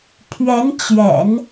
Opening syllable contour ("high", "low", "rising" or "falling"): rising